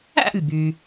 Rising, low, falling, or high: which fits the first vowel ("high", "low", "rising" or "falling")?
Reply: falling